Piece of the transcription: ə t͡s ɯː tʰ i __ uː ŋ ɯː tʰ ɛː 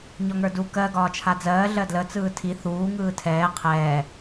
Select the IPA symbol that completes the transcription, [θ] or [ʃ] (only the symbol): θ